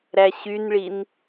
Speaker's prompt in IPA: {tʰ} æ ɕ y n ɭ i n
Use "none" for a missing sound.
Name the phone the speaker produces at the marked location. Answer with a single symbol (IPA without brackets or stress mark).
ɾ